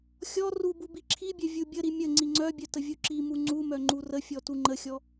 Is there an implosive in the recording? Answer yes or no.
no